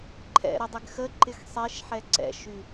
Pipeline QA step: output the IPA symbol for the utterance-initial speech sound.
ǃʰ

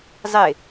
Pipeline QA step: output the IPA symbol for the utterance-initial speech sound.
zˤ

